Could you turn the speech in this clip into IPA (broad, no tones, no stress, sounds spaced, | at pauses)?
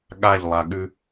ɠ a ʎ lˠ a ɠ ʉ